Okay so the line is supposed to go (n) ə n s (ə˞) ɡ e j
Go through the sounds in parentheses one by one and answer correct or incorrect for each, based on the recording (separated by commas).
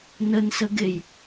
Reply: correct, incorrect